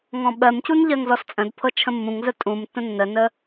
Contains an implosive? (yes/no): yes